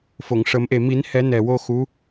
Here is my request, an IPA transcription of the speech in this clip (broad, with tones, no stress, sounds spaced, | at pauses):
f o˨˩˨ ŋ ʂ ə˨˩˦ m ʔ e˨˩ m i˨˩˦ n h ɛ˨˩˦ n ɛ˨˩ w o˧ x u˧˥